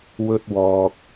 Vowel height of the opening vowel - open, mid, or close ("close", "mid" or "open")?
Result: mid